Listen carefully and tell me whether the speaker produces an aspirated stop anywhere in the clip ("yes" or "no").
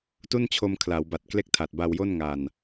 yes